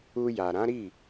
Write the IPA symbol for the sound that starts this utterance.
u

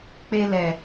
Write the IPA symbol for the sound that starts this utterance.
k͡p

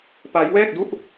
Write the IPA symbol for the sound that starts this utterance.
p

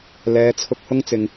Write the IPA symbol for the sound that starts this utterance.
l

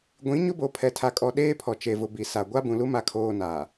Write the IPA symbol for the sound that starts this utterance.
ɡʷ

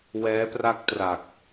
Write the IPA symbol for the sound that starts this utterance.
w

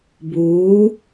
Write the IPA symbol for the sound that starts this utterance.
b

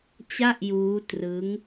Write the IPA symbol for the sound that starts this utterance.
t͡ɕ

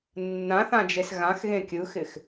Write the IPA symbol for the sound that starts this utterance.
nː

